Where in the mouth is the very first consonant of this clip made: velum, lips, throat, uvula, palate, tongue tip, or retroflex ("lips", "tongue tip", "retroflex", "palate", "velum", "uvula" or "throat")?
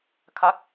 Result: velum